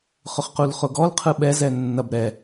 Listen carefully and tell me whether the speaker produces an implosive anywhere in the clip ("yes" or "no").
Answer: yes